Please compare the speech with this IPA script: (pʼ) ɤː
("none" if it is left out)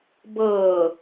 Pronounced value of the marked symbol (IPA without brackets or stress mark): b